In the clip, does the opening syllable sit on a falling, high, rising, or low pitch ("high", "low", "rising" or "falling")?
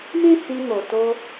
high